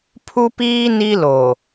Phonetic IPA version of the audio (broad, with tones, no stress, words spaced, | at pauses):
pʰu˦piː˦ ni˦lo˨